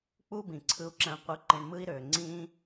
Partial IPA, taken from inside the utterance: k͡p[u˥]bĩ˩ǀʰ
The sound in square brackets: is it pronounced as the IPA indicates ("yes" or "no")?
yes